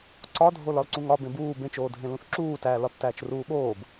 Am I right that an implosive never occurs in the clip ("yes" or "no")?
no